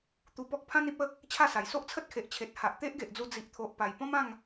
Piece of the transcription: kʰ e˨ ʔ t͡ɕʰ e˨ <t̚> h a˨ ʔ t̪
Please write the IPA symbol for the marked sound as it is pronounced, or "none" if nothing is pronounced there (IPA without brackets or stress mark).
t̚